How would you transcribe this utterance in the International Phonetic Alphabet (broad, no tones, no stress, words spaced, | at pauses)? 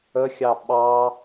əxʲɑ ɓɑ